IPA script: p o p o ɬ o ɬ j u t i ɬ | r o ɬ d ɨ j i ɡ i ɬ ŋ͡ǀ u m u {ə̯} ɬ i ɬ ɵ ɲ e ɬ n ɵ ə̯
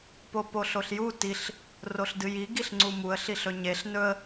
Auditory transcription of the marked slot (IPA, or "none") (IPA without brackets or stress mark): ə̯